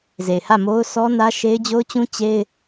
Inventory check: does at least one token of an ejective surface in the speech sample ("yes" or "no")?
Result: no